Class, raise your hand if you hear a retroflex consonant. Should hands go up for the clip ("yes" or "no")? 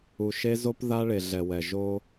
yes